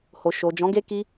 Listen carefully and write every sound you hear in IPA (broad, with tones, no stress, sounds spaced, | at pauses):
h o˨ ʃ o˨ d͡ʒ ɔ̃˨˦ ɡ e˦ k i˦